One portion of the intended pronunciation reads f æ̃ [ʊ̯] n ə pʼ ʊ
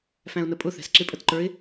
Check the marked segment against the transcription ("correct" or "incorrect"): correct